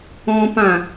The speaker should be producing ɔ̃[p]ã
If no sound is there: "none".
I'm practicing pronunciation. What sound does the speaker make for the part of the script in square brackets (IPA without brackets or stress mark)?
p